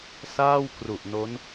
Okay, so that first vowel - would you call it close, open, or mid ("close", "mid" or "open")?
open